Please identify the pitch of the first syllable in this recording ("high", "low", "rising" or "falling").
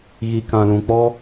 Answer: low